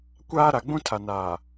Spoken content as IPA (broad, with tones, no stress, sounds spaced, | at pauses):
kʷ aː˦ ɾ a˨ ɡ͡b ũ˦ tʰ a˨ n aː˨